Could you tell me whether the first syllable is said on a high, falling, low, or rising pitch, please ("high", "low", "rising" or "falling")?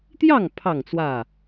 falling